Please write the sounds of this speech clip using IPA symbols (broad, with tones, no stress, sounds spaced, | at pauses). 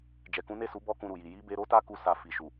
d͡ʒ ɛ˨ k ũ˨˦ n e˦˨ s u˨˦ b ɔ˦ k ũ˧ ɾ u˨ j i˨ j i˨˦ b e˧ ɾ o˦ t a˦ k u˦ s a˧ f i˨ ʃ u˨